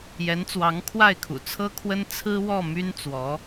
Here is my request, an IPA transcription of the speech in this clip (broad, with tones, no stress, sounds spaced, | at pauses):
j ɛ˧˥ n t͡s w ɑ˧˥ ŋ kʰ w a˥˩ ɪ̯ kʰ ṵ˨˩ t͡sʰ ɤ˥ kʰ w ə˥ n t͡sʰ ɹ̩˥ w ɔ˥˩ m y˥ n t͡s w ɔ˧˥